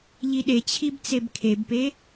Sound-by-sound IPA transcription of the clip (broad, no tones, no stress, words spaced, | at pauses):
ʎiɗet͡ɕʰib t͡sebkʰebpe